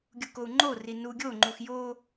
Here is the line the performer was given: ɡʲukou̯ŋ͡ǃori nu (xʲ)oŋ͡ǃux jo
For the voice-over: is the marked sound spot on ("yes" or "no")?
no